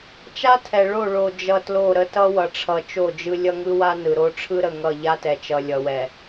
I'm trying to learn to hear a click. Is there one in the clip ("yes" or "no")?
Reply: no